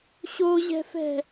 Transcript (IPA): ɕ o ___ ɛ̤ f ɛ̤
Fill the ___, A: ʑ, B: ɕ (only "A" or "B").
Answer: A